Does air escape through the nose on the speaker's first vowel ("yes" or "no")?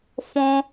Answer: yes